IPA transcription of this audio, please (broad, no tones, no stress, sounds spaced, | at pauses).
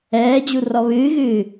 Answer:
ɛː d͡ʑ u r ɔ β ɨː ɣ ɨː